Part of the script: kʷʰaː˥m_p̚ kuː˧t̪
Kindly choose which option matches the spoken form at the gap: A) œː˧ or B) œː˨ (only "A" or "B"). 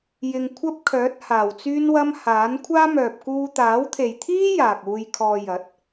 B